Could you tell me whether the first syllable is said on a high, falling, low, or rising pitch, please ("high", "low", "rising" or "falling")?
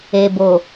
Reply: low